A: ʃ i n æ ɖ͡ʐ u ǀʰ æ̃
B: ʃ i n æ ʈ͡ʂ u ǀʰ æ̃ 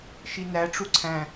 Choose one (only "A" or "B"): B